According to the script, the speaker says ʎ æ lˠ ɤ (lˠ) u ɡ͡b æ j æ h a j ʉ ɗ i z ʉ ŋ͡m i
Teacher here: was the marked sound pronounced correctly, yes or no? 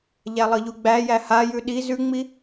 no